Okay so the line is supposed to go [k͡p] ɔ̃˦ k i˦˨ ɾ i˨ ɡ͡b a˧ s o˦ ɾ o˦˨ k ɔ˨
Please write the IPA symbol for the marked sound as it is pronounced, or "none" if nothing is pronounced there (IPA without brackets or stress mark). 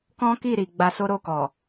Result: k